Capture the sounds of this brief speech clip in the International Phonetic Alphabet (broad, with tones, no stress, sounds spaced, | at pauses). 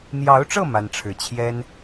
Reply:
n̪ j ɑ˧˥ ʊ̯ ʈ͡ʂ ɤ˥˩ m a˥ n ʈ͡ʂʰ ɻ̩˥˩ t͡ɕʰ j ɛ˥ n